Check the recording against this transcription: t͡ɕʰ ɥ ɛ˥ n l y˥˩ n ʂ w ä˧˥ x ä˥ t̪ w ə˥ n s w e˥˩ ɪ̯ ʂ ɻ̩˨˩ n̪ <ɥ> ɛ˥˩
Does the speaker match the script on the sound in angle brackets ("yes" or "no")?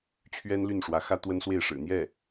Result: no